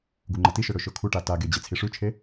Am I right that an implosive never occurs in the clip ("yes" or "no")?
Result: yes